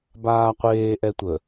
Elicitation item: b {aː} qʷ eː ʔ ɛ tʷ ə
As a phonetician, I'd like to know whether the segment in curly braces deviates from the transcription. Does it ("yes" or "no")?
no